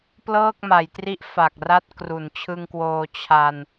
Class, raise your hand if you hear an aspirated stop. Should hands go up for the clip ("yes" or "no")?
yes